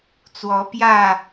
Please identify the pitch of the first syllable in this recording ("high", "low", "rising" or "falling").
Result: rising